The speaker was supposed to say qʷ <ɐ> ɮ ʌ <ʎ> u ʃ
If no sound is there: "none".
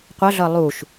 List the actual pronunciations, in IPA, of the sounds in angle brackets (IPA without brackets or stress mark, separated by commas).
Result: ɐ, lˠ